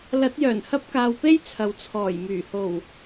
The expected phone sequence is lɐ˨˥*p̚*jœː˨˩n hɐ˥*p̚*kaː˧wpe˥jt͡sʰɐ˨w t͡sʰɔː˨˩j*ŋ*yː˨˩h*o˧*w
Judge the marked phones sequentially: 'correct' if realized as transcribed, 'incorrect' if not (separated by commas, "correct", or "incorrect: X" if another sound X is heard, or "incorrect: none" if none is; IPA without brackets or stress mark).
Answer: incorrect: t̚, correct, incorrect: m, incorrect: o˨˩